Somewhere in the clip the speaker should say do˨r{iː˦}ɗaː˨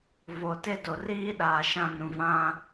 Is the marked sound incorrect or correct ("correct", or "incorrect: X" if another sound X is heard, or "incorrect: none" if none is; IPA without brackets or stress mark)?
correct